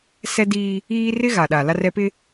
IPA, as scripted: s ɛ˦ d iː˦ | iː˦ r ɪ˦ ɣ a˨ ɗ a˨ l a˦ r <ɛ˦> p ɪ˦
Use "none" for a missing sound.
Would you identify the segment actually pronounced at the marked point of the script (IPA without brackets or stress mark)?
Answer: ɛ˦